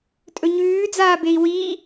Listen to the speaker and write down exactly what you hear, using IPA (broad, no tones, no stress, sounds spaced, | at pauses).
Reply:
tʼ ɵ ɲ ʉː d͡z aː b e i̯ w i